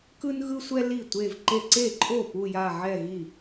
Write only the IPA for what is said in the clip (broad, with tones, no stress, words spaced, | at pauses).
kɯ˥nɣɯ˥sʷɛ˥li˥˩ tʷe˥˧v ǃe˥˧ ǀe˥˩ǃʼo˥˩ pu˥˧ja˥˧ʕɛ˥˧ɣi˥˩